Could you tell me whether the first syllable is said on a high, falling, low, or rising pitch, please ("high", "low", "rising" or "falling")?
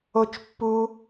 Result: high